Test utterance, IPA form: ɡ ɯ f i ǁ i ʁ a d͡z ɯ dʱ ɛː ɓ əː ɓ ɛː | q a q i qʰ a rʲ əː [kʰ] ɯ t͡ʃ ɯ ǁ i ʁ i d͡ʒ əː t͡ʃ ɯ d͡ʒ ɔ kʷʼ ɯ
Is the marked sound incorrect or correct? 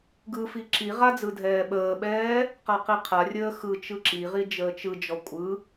incorrect